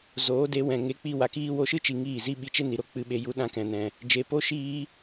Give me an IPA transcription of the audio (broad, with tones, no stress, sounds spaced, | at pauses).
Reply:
z oː˨˦ d e˨˦ w ɛ̃˨ ŋ e˧ k͡p i˧ w a˨ k iː˦ w o˧ ʃ ɨ˦ t͡ʃ i˨ ŋ iː˦˨ z i˦ ɓ i˧ t͡ʃ e˦ n i˨ ɾ o˦ k͡p ɨ˧ ɓ e˧ j u˦ ɗ ã˦ k ɛ̃˨ n ɛ̃˨ | d͡ʒ e˨ p o˦ ʃ iː˦